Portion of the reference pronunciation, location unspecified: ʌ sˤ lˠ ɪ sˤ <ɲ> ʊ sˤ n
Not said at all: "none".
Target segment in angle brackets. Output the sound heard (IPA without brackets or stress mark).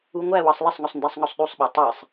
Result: ŋ